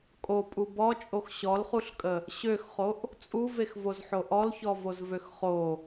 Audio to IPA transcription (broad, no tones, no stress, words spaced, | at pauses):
kʼopʼu bɔt͡ʃʼox ɕɔlχuɬkʼə | ɕøxχoʔ | t͡sʼuvexvozħo ʔɔlçɔvozvøx χo